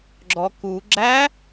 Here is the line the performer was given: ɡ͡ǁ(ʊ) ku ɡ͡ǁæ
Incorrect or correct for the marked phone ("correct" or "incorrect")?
incorrect